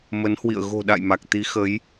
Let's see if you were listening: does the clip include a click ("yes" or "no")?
no